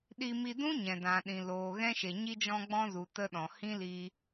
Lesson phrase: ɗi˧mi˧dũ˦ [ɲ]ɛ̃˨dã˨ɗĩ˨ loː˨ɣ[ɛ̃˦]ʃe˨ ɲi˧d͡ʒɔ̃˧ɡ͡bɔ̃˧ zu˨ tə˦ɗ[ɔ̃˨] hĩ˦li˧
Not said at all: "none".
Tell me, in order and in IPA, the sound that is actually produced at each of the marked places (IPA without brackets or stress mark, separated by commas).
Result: ɲ, ɛ̃˦, ɔ̃˨